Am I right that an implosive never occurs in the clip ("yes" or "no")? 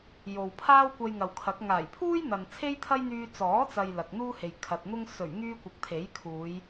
yes